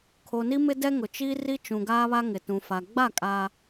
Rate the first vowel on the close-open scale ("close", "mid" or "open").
mid